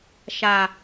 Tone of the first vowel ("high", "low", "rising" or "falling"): low